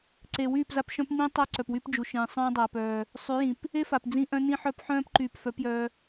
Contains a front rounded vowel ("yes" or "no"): yes